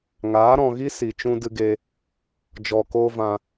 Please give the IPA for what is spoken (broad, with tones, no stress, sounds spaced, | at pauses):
ŋ aː˨˦ ɾ ɔ̃˨ ɣ i˦ s i˨ t͡ʃ ũ˦ d ɨ˧ ɡ e˧ | d͡ʒ ɔ˧ k oː˦ v ã˧